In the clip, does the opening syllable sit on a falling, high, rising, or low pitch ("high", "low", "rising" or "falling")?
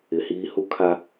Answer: low